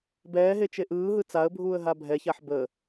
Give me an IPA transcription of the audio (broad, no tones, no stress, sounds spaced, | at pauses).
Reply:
b ɛː ɦ e t͡ʃ e ʔ ɯː ɦ ɯ t͡s a ə̯ bʱ uː ə̯ ɦ a bʱ ɛ ç a ħ b ə